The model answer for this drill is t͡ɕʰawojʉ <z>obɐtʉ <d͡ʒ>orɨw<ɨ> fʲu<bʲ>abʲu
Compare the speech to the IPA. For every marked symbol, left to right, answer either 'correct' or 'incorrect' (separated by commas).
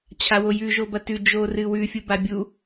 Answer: incorrect, correct, incorrect, incorrect